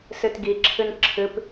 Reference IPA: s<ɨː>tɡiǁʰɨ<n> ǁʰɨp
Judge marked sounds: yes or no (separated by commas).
no, yes